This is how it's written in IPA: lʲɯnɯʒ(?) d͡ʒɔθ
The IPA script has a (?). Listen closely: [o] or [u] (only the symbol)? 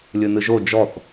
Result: o